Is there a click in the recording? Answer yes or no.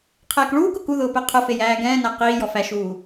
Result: no